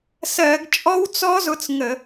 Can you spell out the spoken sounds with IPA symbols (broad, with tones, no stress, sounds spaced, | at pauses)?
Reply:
s ɜ˧˩˧ ɡ t͡ʃʼ ɔ˦˥ w t͡s ɔ˦˥ z ʊ˧ t͡s ŋ ə˧˩˧